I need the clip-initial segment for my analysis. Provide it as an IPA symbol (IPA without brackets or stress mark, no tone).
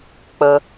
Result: k͡p